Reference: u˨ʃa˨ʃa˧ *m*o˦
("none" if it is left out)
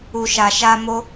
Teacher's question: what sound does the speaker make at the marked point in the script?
m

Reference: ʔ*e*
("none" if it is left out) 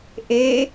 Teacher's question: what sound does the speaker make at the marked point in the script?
e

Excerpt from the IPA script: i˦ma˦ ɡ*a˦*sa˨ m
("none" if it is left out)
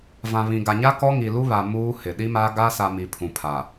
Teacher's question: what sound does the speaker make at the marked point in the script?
a˦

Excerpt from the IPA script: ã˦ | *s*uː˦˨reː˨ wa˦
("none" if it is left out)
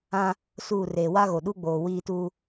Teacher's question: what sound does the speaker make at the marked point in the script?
s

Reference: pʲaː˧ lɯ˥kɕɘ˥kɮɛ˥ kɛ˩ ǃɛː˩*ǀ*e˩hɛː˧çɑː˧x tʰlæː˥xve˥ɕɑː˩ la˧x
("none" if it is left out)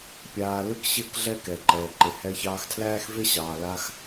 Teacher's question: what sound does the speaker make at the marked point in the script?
ǃ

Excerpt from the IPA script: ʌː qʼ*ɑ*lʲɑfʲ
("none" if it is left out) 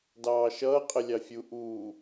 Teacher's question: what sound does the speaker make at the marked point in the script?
ə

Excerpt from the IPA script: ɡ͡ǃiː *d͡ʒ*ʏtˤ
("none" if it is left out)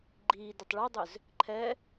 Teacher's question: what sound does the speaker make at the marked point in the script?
d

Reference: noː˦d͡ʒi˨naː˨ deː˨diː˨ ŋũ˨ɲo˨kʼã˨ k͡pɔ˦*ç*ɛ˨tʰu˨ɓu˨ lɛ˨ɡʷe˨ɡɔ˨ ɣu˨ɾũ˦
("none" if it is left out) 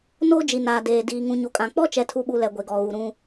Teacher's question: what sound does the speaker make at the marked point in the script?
t͡ʃ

